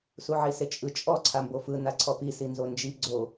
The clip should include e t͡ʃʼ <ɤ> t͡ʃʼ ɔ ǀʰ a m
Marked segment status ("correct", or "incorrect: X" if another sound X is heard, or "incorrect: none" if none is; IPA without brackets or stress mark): incorrect: ɯ